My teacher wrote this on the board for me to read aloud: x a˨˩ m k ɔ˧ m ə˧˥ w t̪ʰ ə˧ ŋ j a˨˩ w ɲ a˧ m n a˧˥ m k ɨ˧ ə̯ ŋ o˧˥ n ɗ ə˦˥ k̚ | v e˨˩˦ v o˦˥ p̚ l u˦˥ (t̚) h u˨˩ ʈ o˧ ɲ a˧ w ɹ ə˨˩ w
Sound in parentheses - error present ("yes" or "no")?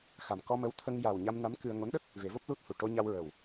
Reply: no